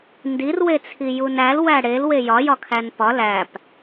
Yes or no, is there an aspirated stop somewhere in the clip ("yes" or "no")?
yes